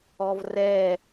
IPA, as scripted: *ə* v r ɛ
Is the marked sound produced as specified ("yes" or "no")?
no